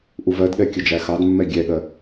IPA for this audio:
ʔuvɜdɠɛ kʲəd͡ʒæxɑdmːɛ ɡʲɛɠɜ

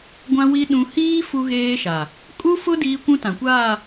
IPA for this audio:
ɡʷã˦wi˦ ɗũ˦ hiː˦ fu˦ɣeː˦ʃa˨ | kʼu˦fʊ˦ diː˦kʷũ˦ tã˨kʷaː˦˨

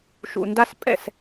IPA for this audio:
ʃṵ˨nda˧s pʼɛ̰˦˨s

